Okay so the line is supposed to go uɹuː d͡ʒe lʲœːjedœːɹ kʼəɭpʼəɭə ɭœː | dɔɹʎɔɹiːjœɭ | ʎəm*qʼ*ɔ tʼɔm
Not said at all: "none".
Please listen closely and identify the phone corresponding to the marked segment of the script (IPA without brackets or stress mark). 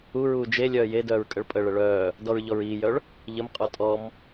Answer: qʼ